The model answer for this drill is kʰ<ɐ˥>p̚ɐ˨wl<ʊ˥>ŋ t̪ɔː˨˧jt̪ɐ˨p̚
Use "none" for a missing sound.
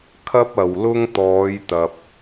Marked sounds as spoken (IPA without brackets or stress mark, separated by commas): ɐ˥, ʊ˥